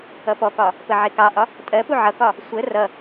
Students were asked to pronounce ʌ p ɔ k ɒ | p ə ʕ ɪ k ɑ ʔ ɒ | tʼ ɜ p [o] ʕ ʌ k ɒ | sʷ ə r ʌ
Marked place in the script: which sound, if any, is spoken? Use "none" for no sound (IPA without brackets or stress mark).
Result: u